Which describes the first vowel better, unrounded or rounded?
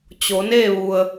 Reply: rounded